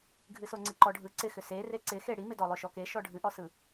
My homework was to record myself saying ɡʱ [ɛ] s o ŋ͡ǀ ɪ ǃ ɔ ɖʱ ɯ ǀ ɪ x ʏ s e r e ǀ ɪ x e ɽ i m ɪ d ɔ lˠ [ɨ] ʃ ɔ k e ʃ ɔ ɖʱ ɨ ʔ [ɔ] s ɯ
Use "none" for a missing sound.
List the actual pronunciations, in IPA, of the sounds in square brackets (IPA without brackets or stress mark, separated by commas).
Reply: ɨ, ʏ, ɔ